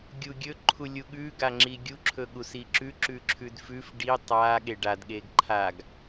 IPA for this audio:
ɡʲ u ɡʲ ɵ ǃʰ u lʲ u ɠ ʉ ɡ a ŋ͡ǁ i ɡʲ u ǁʰ ɵ ɠ u s i ǁ ʉ ǁ ʉ ǁʰ ʉ d f ʉ f ɖ i tˤ a ɠ e ɖ a d ɠ e ɡ ǃʰ a ɡ

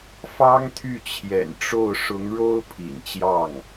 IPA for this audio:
f ɑ˥ ŋ t̪ʰ y˥˩ t͡ɕʰ j ɛ̰˨˩ n ʈ͡ʂ o˥˩ ʊ̯ ʂ ʊ˧˥ ŋ ɻ o˥ ʊ̯ pʰ ḭ˨˩ n t͡ɕ j ɑ˥˩ ŋ

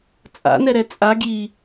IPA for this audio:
t͡sʼ a̰ n ɛ ɾ ɛ t͡sʼ a ɡ j i

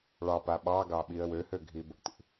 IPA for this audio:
ɭ ɑ p a ɓ ɑ ɡ ɑ ɓ i ə̯ w ø h ø ɡʱ i b ə̰ t ḭ

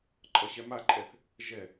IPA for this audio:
ǃʼ ʌ ɕ ɛ m a ǃʼ ɛ θ | ʒ ɛ

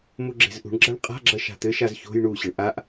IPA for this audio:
m u ɡ͡ǁ e̤ z ʔ ṳ ɳ ɡ͡ǁ a ɳ qʼ a̤ ɡ͡ǁ ɐ ʃ a̤ t̪ ɘ ʃ a z ç o̤ j ɳ u ɕ ɘ ɳ ʔ a ʔ

